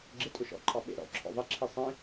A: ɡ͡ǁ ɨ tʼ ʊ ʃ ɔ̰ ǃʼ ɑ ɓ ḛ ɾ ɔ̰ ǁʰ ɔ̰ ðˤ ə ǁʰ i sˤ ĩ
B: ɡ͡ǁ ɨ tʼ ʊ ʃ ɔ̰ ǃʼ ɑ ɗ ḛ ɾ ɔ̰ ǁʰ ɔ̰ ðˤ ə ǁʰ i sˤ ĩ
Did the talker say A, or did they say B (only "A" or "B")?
A